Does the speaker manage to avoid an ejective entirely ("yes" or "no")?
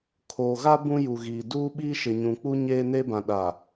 yes